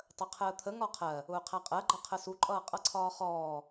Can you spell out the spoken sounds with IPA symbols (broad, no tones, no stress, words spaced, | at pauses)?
tˤəqʰəːt̪ʰə ŋɒqʰɜ | ʊːqʰæqʼɜ ɡ͡ǃʌqʰəsu ǃʼʌːqʼʌǀʰɒːχɔː